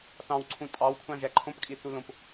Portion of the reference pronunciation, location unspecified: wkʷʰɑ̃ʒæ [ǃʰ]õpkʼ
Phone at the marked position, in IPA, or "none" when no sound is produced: ǃʰ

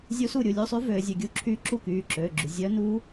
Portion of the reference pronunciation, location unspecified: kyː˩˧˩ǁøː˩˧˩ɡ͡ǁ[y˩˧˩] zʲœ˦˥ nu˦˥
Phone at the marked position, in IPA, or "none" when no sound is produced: y˩˧˩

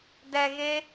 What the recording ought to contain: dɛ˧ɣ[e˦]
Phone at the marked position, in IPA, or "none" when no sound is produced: e˦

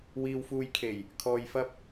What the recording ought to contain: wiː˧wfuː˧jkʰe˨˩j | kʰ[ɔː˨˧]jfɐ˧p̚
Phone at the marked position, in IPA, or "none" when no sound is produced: ɔː˨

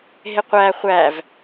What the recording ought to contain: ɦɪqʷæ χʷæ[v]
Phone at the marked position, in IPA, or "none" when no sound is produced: v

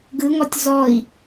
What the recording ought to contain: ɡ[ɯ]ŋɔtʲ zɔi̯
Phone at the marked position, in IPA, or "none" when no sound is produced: ɯ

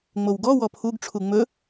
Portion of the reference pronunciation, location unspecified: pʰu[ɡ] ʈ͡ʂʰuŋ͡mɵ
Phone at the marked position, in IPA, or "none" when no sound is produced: ɡ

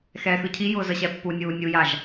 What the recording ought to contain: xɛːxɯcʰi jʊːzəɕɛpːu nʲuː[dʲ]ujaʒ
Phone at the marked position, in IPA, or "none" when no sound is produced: nʲ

